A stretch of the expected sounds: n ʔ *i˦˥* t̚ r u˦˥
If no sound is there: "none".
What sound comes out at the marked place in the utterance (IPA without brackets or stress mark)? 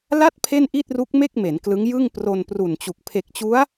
i˥˩